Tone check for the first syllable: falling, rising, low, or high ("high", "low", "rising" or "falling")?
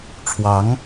rising